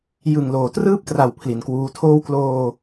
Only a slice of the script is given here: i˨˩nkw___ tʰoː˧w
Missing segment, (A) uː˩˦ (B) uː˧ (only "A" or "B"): B